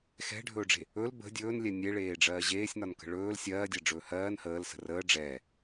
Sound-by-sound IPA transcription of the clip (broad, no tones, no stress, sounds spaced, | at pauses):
x ɛ̤ ɖʱ ɵː ɖ͡ʐ e̤ | ɵ l b ə̤ dʲ ɵː n lʲ ɛ nʲ e ɭ eː ɖ͡ʐ ɜː ʑ eː sʲ n ɒ n k ə̤ ɭ ɵː l sʲ ɜː dʲ ɜ ɖ͡ʐ ɵː h ɜː n h əː l s ə̤ r əː ɖ͡ʐ ɛ